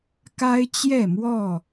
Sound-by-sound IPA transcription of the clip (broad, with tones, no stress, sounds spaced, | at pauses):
k a˦ ɪ̯ t͡ɕ j ɛ˥˨ m w ɔ˥˨